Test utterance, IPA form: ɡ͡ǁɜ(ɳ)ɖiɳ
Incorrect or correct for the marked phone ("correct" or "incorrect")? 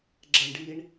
correct